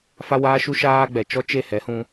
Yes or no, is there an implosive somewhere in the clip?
no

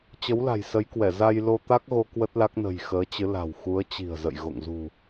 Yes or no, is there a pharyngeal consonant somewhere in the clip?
no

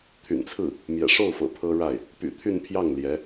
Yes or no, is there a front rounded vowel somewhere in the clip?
yes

